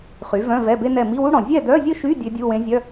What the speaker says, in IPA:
χ y˩˥ v œ̃˧˥˧ v ɛ˧˥˧ b e˥ n ɛ˥˨ m i˧˥˧ w u˥ ɽ ɔ̃˨ zʲ ɛ˥˨ d œ˧˥˧ zʲ ə˥ ʃ y˧˥˧ dʲ ø˧˥ dʲ u˧˥˧ w ẽ˧˥ zʲ œ˧˥˧

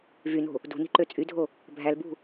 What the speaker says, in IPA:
v y n o̤ | d ṳ n i̤ ǃ ø t͡sʼ y dʱ o | bʱ æ l b ṳ

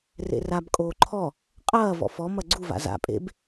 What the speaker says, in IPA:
r ḛ r a b kʼ oː ǃʰ ɔ | qʼ ɐː v ɔ̰ f ɔ m ɐ ɡ͡ǀ u v a̰ z a̰ pʼ ḛ b

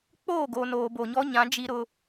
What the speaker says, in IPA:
k͡p oː˦˨ ɡ o˨ n oː˨ b o˨ ɲ ɔ˦ ɲ ã˨˦ d͡ʒ i˦ ɾ ʊ˦

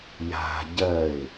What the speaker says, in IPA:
j a̤ ɟ ɜ ɪ̯

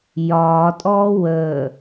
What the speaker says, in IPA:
j ɒː tʼ ɔː w əː

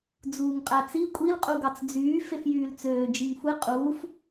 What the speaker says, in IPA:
d͡z uː ŋ qʼ æ t͡s i kʷʼ i l qʼ u ɡ ɑ t͡s d͡z yː f e f j yː l t͡s øː d͡ʒ i ŋ xʷ e qʼ uː f

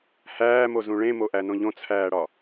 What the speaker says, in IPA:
h æː m o z ũ ɭ ẽ m o ʔ æ n õ ʎ õ t͡sʰ æː ɽ ɒ

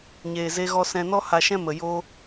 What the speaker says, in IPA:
ɲ eː˨ z e˧ ɣ ɔ˧ s ɛ̃˧ n ɔ˦ h a˧ ʃ ɛ̃˦ m ə˨ j o˧

